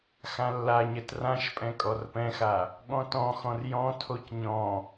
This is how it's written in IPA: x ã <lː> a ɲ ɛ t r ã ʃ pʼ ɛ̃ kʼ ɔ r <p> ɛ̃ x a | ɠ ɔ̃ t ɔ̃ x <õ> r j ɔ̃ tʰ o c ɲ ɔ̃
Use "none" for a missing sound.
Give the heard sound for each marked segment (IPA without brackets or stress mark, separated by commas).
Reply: lː, p, ɔ̃